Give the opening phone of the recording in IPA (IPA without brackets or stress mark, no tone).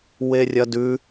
w